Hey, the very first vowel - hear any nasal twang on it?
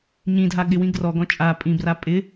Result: yes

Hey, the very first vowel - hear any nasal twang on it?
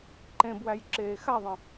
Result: yes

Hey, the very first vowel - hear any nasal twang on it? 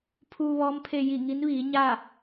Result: no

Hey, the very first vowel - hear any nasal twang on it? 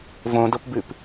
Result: yes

